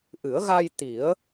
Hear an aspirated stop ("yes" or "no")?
no